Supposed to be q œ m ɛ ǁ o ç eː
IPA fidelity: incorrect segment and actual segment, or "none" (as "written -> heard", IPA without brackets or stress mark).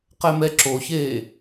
œ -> ɛ